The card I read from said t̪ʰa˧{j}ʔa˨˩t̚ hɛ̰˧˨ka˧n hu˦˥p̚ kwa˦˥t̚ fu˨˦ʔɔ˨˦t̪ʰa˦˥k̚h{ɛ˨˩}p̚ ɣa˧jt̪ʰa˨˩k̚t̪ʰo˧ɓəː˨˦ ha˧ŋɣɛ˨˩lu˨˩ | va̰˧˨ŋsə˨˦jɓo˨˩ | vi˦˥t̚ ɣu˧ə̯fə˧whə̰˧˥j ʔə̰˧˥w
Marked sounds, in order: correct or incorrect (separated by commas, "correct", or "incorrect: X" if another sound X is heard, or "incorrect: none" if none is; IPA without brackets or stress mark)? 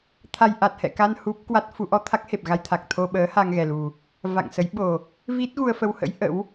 correct, incorrect: e˨˩